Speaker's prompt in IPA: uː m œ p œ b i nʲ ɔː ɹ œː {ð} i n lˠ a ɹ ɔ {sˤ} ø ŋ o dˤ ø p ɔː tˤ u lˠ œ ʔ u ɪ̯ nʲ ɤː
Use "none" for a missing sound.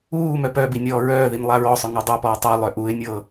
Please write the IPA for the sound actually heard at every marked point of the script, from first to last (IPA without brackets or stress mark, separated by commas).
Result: ð, sˤ